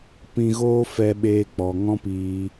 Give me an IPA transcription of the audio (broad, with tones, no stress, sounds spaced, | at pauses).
p ĩ˧ ɣ oː˦ f ɛ˦ ɓ eː˧ k͡p ɔ˨ ŋ ɔ̃˦ p iː˧